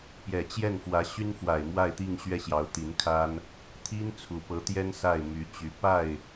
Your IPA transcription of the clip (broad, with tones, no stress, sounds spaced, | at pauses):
p j ɛ˨˩ t͡ɕ j ɛ˥˩ n f w ä˧˥ ɕ y˥ n f w a˨˩ ɪ̯ m w a˥˧ ɪ̯ t̪ i˥˧ ŋ ɕ ɥ ɛ˥˩ ɕ j ɑ˧˥ ʊ̯ t̪ i˧˥ n kʰ a˥ n | t̪ʰ i˥ n t͡sʰ u˨˩ p ɤ˧˥ t̪ j ɛ˥ n s a˥˩ ɪ̯ m y˧˥ t͡ɕ y˧˥ p a˥˩ ɪ̯